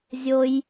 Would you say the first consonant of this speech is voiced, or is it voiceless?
voiced